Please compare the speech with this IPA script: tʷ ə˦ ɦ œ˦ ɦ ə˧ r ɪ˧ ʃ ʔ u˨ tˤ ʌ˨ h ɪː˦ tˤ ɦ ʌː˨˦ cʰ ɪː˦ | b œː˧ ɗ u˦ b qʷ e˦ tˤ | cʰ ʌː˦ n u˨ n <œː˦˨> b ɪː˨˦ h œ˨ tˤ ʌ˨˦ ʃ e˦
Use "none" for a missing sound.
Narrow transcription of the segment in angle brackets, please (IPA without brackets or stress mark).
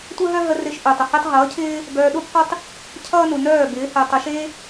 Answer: œː˦˨